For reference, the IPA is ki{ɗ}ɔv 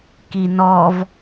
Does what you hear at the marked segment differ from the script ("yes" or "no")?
yes